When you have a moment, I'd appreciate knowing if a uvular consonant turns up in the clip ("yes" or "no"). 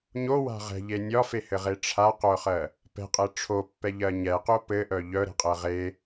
yes